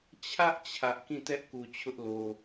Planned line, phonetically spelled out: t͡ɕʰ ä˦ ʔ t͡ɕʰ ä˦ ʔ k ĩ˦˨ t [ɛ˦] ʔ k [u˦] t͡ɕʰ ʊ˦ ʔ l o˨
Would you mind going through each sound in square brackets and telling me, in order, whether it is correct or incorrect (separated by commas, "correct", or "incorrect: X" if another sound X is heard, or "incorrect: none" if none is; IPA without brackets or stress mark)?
correct, incorrect: u˨